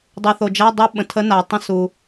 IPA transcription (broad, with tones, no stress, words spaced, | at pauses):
dˤɨ˩θo˩d͡ʒa˧˥˧dˤɨ˧˥ ɓə̃˩tʰə˧˥ na˩tˤə̃˧ su˩